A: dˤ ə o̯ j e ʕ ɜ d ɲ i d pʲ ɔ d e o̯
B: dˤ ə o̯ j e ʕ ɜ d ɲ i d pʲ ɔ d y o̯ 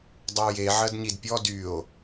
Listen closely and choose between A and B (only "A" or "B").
B